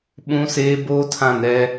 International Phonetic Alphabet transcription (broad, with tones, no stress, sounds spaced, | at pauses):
ɓ ũ˦ s eː˦ b oː˦ tʰ ã˦˨ n ɾ ɛ˦